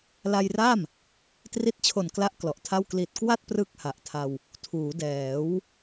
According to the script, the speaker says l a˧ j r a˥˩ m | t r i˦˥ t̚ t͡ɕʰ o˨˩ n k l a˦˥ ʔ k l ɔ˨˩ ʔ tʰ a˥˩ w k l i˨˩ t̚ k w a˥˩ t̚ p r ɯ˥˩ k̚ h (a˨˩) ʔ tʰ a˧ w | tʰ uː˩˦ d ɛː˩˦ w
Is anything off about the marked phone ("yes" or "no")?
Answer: no